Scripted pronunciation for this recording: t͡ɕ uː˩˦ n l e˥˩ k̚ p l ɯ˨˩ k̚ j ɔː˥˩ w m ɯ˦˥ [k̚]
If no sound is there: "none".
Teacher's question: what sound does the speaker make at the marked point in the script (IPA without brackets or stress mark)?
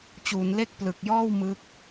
k̚